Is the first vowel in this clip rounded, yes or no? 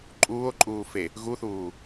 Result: yes